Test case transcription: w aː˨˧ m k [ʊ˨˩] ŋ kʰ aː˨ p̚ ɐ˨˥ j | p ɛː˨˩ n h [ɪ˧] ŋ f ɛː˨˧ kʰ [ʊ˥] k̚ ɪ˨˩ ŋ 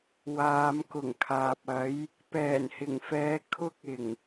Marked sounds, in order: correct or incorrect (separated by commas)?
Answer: correct, incorrect, incorrect